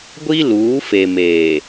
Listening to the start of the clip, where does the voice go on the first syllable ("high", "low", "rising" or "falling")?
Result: high